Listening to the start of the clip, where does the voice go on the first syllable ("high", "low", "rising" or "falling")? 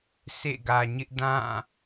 falling